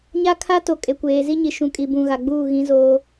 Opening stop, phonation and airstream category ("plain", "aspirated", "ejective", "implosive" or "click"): aspirated